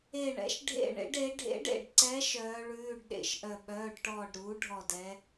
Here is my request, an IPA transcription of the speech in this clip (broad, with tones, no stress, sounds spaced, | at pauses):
e˦˨ ɳ ɛ̰˩˥ ʃ ɖʱ ḛ˦˨ ɳ ḛ˩˥ ɖ e˩˥ ɖʱ ḛ˧˥ ɖ ḛ˦˨ ɖ ǀ ɛ˧˥ ʃ œː˧˥ ɭ ʉː˧˥˧ ɖ ɗ ḛ˦˨ ʃ ʔ œ˦˨ ɓ œː˧˥˧ ɖ ʈ ɔː˦˨ ɖ ɾ uː˩˥ ɖʱ ɔ˦˨ d ɛ˧˥